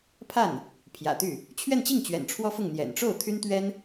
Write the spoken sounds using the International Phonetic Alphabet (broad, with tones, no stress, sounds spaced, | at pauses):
pʰ a˥˩ n | pʰ j ä̰˨˩ t̪ y˥˩ | t͡ɕʰ ɥ ɛ˥˧ n t͡ɕ i˥˩ ŋ t͡ɕ ɥ ɛ̰˨˩ n ʈ͡ʂʰ w ɔ˥ f ʊ˥˩ ŋ n̪ j ɛ̰˨˩ n ʈ͡ʂ o˥˩ ʊ̯ t̪ʰ y˥ n t̪ ɥ ɛ˥ n